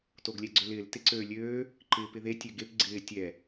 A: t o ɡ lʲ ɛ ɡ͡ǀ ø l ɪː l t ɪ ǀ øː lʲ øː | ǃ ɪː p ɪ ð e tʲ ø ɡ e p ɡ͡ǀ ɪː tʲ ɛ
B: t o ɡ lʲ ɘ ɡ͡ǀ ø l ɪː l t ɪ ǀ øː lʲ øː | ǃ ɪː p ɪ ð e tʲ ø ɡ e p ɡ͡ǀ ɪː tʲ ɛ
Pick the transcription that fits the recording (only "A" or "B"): A